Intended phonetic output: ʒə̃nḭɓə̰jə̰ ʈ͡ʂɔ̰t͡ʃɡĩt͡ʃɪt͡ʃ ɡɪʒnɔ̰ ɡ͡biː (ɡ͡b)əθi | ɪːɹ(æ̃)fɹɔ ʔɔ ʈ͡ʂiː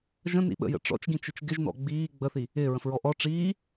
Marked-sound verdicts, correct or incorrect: correct, incorrect: ə̃

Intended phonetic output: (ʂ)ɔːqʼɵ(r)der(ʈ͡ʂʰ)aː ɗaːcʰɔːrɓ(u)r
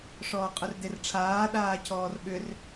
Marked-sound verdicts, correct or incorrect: correct, correct, correct, incorrect: ʏ

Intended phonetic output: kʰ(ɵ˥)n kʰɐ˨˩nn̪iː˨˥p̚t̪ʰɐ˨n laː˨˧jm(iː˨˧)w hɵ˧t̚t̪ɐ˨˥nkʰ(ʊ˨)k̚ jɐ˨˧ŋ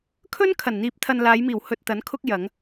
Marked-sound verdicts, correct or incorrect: correct, incorrect: iː˨˩, incorrect: ʊ˥

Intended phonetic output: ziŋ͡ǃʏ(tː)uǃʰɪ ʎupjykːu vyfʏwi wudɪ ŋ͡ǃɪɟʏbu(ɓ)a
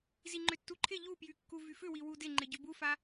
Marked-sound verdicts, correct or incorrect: correct, incorrect: f

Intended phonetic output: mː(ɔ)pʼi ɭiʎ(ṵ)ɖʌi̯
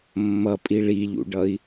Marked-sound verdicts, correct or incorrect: incorrect: ʌ, correct

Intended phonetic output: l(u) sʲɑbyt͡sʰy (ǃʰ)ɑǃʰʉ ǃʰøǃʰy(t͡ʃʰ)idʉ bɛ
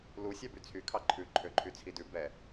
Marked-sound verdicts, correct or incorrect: correct, incorrect: kʰ, incorrect: t͡sʰ

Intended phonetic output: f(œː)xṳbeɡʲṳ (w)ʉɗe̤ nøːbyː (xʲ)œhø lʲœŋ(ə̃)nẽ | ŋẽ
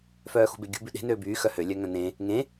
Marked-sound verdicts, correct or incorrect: correct, incorrect: b, incorrect: x, incorrect: œ̃

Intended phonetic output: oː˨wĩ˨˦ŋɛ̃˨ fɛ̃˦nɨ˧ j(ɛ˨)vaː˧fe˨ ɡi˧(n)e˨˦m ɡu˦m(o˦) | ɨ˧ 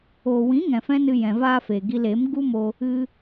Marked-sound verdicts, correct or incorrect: incorrect: ɛ̃˨, incorrect: l, incorrect: o˧

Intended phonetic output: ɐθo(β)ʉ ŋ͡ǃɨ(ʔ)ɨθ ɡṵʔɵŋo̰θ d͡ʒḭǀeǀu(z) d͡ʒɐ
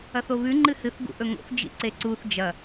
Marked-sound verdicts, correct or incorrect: correct, incorrect: h, incorrect: θ

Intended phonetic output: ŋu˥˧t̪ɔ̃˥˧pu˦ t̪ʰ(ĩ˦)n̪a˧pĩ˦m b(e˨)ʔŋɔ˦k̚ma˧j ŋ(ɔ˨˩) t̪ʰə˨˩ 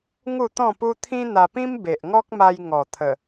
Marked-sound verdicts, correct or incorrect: correct, correct, correct

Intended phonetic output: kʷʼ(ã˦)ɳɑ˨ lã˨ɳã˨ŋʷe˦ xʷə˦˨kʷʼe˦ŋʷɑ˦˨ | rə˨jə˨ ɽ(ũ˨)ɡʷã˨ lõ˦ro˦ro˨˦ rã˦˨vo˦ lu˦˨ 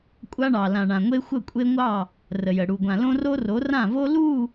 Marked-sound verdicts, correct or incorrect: incorrect: a˦, incorrect: u˨

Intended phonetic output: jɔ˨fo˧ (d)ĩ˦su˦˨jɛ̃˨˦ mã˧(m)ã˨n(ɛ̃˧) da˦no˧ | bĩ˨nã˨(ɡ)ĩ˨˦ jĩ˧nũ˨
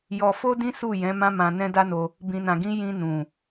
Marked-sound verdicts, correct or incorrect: correct, correct, correct, correct

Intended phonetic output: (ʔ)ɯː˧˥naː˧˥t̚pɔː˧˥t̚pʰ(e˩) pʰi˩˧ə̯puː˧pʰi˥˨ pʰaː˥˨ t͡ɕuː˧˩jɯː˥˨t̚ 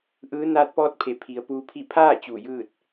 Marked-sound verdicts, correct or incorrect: correct, incorrect: e˩˧

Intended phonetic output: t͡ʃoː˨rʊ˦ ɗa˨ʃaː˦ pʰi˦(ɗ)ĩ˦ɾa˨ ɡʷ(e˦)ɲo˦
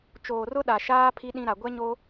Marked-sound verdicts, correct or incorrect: correct, incorrect: ɛ˦

